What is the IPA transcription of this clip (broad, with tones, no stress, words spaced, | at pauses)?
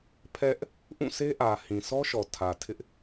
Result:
pʰɛ˦ʔ | ʔũ˦˨se˦ʔä˨ hĩ˨sʰɔ˦ʃɔ˨ tʰä˨ tʰɪ˦ʔ